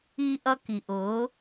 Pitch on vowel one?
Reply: high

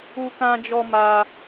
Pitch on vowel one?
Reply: high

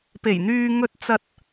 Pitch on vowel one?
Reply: low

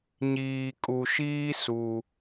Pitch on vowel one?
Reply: low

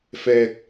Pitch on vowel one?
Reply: low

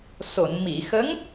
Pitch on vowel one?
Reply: low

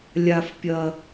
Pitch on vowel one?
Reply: low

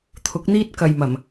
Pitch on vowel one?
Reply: rising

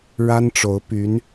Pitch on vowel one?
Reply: high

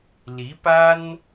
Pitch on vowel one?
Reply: rising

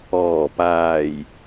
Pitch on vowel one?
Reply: low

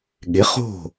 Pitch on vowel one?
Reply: rising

